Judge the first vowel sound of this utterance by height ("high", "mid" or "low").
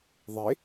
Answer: mid